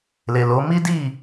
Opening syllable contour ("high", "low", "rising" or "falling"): low